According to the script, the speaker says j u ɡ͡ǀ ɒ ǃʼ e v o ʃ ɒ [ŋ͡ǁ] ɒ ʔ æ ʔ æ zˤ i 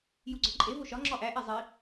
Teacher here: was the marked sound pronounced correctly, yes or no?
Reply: yes